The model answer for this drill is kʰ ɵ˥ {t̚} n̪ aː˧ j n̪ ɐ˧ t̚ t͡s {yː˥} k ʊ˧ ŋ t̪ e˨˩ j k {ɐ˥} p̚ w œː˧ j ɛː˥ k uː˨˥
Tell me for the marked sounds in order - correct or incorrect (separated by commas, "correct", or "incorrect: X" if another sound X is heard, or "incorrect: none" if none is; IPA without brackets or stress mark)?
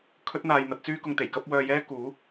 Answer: correct, correct, correct